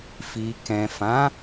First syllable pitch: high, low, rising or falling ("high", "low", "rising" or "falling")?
low